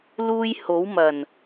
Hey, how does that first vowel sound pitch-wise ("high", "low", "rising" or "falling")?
high